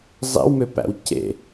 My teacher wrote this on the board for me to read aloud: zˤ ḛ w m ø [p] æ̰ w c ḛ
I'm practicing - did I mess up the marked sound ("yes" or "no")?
no